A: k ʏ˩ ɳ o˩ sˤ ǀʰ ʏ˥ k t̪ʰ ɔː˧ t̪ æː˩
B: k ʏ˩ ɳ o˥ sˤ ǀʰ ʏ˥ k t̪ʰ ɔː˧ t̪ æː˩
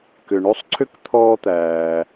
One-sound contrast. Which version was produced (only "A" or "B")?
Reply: B